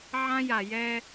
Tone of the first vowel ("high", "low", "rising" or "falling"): high